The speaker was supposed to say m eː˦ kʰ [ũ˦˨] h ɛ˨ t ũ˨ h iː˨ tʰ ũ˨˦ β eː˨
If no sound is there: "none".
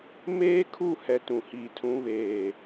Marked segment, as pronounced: u˦˨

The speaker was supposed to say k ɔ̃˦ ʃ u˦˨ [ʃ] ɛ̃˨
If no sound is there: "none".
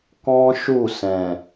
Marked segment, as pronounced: s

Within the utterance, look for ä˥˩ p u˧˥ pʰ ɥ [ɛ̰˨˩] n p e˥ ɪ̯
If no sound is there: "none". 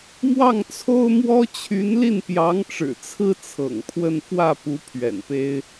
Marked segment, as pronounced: ɛ̰˨˩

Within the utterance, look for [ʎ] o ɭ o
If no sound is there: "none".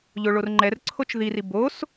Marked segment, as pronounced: ʎ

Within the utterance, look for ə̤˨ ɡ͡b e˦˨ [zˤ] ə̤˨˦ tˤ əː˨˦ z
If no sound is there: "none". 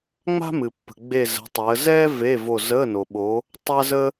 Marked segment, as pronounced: z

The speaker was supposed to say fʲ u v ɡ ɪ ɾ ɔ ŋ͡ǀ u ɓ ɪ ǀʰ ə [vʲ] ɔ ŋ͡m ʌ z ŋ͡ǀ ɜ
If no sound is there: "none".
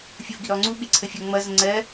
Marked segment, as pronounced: fʲ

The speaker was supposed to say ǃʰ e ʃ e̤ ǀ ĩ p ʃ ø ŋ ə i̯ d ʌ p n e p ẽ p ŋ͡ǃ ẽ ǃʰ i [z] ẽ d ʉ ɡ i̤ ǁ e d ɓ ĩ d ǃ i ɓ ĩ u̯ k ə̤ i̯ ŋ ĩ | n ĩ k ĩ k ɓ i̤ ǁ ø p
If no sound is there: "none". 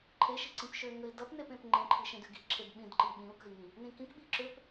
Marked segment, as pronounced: ʃ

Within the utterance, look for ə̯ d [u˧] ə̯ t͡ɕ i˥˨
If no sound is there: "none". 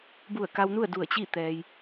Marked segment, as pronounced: u˧˩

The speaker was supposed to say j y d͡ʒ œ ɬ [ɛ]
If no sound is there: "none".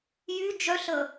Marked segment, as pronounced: ə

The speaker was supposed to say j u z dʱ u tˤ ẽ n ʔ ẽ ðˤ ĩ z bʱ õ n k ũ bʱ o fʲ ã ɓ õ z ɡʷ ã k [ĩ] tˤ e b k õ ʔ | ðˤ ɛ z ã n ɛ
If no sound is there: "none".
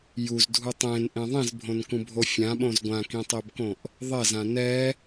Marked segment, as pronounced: ĩ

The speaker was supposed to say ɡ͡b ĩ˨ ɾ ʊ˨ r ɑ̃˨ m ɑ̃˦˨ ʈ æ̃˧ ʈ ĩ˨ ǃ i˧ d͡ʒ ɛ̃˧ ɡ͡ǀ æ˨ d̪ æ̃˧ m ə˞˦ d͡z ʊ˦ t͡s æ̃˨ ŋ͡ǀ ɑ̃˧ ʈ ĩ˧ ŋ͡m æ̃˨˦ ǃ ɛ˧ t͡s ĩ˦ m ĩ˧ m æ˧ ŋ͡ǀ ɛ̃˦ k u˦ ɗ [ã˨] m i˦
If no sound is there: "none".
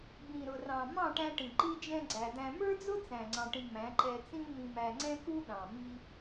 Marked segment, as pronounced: ɑ̃˨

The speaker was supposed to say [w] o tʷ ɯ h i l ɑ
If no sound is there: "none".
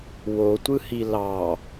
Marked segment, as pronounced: w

